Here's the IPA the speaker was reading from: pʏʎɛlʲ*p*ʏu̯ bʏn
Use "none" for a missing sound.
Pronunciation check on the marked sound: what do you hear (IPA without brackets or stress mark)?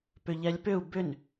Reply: p